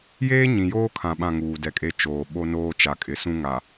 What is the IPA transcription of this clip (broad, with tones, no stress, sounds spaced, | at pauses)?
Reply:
j eː˦ ɲ ĩ˨ j oː˦ kʰ ã˨ ɓ ã˦˨ ŋ uː˨ d ɛ˨ kʼ e˦ t͡ʃ oː˨ ɓ o˦ n oː˦ t͡ʃ a˨ kʼ ɪ˨ s ũ˦ ŋ a˨